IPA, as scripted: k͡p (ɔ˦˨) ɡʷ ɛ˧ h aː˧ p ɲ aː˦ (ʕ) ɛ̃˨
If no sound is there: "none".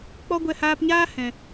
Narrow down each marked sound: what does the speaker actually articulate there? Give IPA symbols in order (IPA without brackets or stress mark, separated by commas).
ɔ˦, h